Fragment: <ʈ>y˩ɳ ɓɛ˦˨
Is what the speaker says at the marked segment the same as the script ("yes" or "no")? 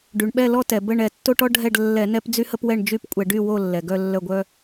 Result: no